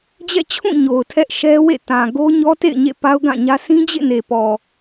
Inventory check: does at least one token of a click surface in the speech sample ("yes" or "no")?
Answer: no